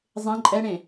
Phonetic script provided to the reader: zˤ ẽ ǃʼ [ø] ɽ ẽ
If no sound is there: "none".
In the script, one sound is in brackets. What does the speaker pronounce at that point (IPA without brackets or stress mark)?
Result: ɛ